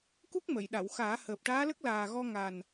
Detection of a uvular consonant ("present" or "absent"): absent